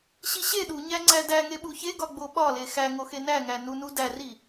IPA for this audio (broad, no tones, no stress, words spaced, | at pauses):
ɕiɕe ɗuɲæ ŋ͡ǀædæ ŋeɓuçeɡɒ ɡ͡boɓɒle xæŋo xenæŋæ nunudæri